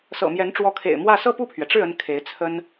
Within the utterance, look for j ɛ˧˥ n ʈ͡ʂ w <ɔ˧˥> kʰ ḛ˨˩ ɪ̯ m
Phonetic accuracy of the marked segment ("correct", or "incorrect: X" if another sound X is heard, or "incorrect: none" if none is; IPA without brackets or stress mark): correct